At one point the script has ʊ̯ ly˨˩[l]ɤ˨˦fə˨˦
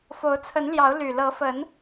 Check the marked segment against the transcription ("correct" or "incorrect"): correct